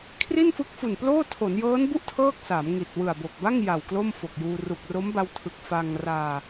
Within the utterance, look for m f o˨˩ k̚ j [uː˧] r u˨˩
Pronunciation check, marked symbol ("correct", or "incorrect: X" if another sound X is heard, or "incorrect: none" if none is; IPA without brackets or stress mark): correct